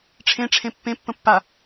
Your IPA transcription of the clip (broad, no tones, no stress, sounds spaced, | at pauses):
ʈ͡ʂʰ ẽ ʈ͡ʂʰ ẽ pː ẽ pː ə̃ pː a